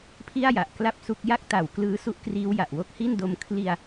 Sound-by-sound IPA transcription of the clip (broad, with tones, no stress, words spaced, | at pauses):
pʰi˥˩a̯ja˨˩ʔ kla˥˩p̚su˦˥k̚ ja˦˥k̚ta˨˩w klɯː˦˥su˦˥ʔkriː˦˥w ja˨˩ʔwo˦˥k̚hi˥˩ndo˧m kʰli˧a̯